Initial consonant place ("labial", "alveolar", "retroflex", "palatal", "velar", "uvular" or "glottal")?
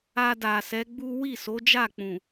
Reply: alveolar